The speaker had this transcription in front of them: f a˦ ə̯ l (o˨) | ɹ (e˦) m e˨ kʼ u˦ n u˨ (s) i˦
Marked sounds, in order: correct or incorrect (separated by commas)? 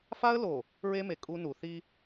correct, correct, incorrect